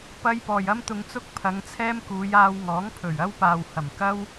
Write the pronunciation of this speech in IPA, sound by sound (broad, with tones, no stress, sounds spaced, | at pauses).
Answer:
p ɐ˥ j p ɔː˨ j ɐ˥ m t̪ ʊ˧ ŋ t͡s ʊ˥ k̚ pʰ ɐ˨˧ ŋ t͡sʰ ɛː˥ m k uː˨˧ j aː˧ w ŋ ɔː˨˥ ŋ pʰ ɵ˨˩ ɥ ɐ˥ w p aː˨ w h ɐ˨˩ m k ɐ˥ w